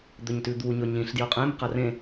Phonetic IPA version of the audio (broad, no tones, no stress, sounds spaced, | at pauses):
d̪ ɵ ɲ t ʉ d̪ u ɲ ɵ ɲ ĩ ɬ d j ɵ qʼ ẽ m q ɐ r ẽ